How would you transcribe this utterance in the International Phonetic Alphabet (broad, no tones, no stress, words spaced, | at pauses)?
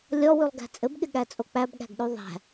lʲɔwʉlˠɡæ̤ t͡sʼɘbɠɪɠæt͡sʼo k͡pæbɠæ̤ɡɗʉ ðˤæ̤